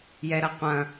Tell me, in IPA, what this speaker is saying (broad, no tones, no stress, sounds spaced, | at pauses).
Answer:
j ɛ ɾ ɐ qʷ ɐ̃